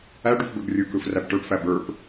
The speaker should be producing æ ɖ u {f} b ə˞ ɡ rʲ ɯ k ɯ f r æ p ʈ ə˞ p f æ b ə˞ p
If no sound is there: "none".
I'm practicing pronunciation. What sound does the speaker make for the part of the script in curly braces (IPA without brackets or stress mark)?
f